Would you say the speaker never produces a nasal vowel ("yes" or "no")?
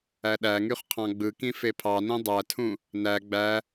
no